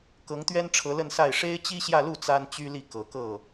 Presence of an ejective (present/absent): absent